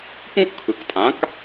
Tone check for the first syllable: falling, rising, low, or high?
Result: high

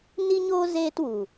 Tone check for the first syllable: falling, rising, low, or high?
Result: high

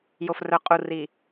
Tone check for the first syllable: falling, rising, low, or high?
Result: low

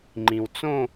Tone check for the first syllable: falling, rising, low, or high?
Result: low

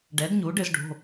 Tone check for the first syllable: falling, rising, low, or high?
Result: rising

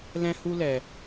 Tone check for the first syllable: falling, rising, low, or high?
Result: high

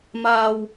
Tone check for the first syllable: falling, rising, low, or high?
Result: low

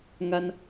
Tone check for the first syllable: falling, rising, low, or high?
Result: high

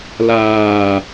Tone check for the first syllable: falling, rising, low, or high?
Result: low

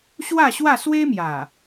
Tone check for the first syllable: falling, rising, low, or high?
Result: falling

